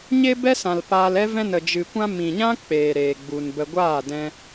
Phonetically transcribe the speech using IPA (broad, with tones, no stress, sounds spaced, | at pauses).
ɲ e˦ b ɛ˦ s ã˨ l p aː˧ l ɛ˦ v ɛ̃˦ n ə˧ d͡ʒ ɨ˧ kʷ ã˦ m ĩ˨ ɲ ã˦ k͡p eː˨ ɾ eː˨ ɡ͡b u˨ n b ə˧ ɡʷ aː˦˨ d ɛ̃˧